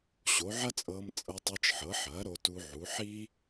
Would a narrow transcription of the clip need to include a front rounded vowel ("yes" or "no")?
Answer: no